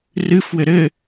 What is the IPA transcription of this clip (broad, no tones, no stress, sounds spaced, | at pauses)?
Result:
r ɨ f w ɘ ɾ ɘ